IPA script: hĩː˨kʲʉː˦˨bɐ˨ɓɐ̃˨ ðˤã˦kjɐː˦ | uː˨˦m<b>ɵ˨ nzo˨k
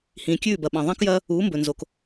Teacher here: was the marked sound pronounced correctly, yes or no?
yes